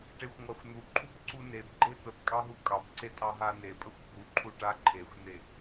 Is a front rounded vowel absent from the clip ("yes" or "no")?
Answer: yes